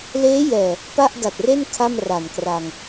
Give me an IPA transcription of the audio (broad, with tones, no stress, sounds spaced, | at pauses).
l eː˦˥ j ɛː˨˩ | p a˥˩ ʔ d a˨˩ t̚ r e˥˩ n kʰ a˥˩ m r a˨˩ n k r a˧ ŋ